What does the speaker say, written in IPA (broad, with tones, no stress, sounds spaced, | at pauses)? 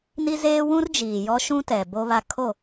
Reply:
n i˦ z eː˦ w ũ˦ r d͡ʒ iː˨ j ɔ˦ ʃ ũ˦ t ɛ˨ b o˦ β a˦ kʰ o˦˨